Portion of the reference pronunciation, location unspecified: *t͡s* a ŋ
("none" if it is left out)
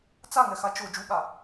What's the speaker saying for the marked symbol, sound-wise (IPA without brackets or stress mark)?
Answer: t͡s